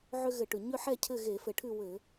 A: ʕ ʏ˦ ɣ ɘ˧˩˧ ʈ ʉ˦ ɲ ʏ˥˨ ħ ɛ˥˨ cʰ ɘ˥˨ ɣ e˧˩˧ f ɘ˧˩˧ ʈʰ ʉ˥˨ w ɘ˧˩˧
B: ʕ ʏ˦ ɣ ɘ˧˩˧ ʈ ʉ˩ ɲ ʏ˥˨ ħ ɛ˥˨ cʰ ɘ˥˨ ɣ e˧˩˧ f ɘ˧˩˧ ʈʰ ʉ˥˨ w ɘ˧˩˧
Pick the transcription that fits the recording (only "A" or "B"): B